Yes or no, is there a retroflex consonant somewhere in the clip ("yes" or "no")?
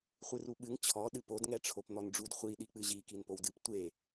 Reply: yes